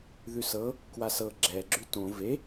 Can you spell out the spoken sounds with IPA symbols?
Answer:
ð ʉ s ɤ | k w a s ɤ ɡ͡ǁ ɛ ɡ͡ǁ ʉ t õ v e

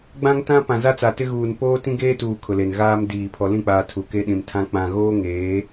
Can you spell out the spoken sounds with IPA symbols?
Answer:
ɡ͡b ã˦ ŋ t ã˦ p ã˨ z a˦ t͡s a˨ t ɪ˦ ɣ uː˨ n p oː˦ t ĩ˦ ɡ eː˦ t uː˨ kʰ ʊ˨ l e˨ n ɣ aː˦ m d iː˨ pʰ ɔ˨ l ĩ˦˨ k͡p aː˨ tʰ u˨ k e˦ ɗ ĩ˨ m tʰ ã˦ k͡p ã˨ ɣ oː˦ ŋ eː˨˦

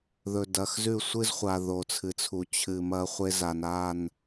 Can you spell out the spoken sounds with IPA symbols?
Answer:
ð ɵ˨ d ɐ˨ x z ʉ˦˨ sʷ ɨ˦ z χʷ a˨ ð o˨ t͡sʰ ɨ˨ t͡sʰ u˨ t͡ɕʰ ɨ˨ m ɐ˦ χʷ e˦ z a˨ n a˦˨ n

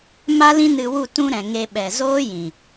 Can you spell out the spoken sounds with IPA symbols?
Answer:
m a˦ l ĩ˦ n ɨ˧ w u˦˨ t ũ˦ ɾ ɛ̃˨ ŋ e˦ ɓ ɛ˨ z oː˦ j ĩ˨

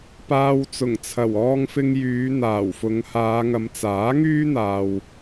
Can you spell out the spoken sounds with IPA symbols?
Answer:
p aː˧ w t͡s ʊ˨˩ ŋ t͡sʰ ɐ˨˩ w ɔː˧ ŋ f ɪ˧ ŋ j yː˨˧ n̪ aː˨˩ w f ʊ˨˧ ŋ h aː˨˧ ŋ ɐ˨˧ m t͡s aː˨˥ ŋ yː˥ n̪ aː˨ w

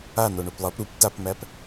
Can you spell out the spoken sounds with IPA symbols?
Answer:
a n o ɳ o p lˠ ʌ p ɾ u p t a p m æ p

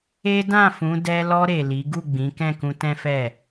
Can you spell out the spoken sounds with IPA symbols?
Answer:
e˦ d ã˦˨ f ũ˨˦ d ɛ˧ l ɔ˧ ɾ e˨ l i˨˦ ɡ u˦˨ ɡ͡b ĩ˨˦ k ɛ̃˦˨ k ũ˧ t ɛ̃˦ f ɛ˦˨

